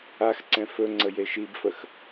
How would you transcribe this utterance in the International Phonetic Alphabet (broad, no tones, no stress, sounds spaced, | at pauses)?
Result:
a x ǀ ɛ̃ f ɵ ŋ͡ǀ ə j e ʃ i b f ə x